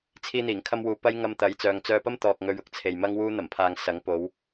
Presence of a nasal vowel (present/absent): absent